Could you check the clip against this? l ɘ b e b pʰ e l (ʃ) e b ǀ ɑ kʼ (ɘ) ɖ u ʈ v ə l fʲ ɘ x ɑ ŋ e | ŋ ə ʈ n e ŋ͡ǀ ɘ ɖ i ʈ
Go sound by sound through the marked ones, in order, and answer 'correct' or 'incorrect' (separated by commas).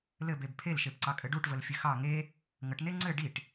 correct, correct